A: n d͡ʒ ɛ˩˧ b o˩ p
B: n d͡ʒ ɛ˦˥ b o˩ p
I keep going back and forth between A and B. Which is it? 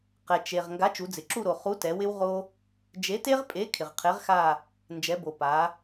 A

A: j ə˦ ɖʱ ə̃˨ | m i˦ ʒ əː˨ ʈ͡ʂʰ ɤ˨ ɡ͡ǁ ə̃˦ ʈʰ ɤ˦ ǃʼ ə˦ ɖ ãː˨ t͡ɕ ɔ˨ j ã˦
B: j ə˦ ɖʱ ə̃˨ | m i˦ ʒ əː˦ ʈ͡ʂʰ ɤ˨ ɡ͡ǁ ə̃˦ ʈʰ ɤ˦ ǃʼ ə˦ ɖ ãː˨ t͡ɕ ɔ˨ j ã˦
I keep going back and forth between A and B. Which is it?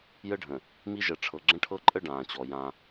A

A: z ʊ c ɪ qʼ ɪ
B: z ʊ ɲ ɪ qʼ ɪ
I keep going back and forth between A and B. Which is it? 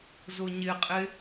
B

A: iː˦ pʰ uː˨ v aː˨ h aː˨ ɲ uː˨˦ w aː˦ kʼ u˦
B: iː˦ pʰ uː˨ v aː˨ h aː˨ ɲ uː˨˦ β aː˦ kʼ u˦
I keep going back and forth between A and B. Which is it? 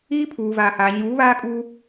B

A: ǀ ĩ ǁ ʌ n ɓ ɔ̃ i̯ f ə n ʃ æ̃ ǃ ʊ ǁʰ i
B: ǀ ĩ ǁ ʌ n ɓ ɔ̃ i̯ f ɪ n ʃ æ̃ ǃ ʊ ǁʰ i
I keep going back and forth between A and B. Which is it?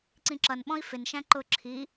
B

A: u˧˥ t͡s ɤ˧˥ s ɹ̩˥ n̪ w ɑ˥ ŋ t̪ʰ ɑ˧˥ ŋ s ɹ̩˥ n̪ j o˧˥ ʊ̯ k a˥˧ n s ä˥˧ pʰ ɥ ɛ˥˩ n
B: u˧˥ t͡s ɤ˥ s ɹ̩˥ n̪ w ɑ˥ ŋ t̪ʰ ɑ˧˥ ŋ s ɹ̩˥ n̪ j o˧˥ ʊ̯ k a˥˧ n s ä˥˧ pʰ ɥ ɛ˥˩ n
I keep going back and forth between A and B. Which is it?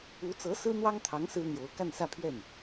A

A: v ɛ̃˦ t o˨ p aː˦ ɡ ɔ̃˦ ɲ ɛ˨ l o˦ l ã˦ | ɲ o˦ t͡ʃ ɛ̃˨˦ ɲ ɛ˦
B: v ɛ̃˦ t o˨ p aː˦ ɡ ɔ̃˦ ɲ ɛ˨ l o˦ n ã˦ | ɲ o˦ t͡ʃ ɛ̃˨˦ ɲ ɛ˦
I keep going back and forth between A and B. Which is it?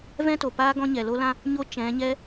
A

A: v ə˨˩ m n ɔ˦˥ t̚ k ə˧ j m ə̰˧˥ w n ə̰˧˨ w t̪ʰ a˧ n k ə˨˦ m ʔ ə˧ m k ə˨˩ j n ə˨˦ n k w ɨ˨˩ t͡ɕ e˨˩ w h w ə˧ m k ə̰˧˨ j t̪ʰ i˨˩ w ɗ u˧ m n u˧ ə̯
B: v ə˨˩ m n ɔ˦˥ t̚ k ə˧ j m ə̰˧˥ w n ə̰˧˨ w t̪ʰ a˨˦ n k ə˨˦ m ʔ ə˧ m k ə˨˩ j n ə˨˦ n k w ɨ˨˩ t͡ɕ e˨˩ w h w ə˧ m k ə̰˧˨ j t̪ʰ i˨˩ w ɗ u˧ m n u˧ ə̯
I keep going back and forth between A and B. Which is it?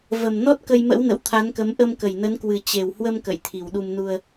B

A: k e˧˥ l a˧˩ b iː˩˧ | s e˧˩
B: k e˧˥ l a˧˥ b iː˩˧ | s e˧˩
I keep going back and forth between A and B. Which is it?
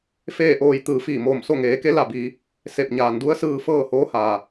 A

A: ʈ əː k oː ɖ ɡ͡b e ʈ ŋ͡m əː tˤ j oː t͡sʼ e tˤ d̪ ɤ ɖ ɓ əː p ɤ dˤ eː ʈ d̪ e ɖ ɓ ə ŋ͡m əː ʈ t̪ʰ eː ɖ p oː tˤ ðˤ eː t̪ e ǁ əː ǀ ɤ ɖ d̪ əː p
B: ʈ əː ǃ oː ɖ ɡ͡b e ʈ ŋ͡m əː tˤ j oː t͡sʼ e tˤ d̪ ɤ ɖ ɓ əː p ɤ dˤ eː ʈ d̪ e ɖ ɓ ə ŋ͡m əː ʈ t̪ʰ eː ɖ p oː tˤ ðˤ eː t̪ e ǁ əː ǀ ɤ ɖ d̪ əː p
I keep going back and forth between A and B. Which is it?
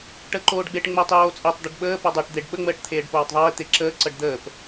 B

